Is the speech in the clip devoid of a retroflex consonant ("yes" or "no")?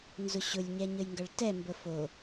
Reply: no